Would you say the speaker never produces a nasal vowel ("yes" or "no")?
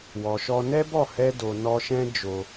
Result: no